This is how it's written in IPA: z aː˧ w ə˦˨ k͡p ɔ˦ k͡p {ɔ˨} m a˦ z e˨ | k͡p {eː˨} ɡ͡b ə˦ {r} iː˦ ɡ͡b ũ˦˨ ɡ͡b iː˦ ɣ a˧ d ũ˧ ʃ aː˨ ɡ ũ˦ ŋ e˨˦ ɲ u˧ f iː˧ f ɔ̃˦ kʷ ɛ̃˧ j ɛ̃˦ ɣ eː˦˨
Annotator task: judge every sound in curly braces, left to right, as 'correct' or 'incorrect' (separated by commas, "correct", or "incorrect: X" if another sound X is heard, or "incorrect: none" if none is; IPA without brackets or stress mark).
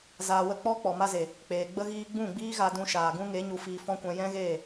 correct, correct, incorrect: ɣ